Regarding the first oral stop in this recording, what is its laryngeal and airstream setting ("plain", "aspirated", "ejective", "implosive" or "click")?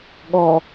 implosive